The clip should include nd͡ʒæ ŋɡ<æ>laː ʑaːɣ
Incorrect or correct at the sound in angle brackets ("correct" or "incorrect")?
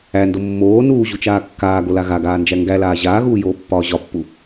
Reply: correct